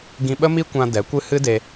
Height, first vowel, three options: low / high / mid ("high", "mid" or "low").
high